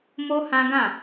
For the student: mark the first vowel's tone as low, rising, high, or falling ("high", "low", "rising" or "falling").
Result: high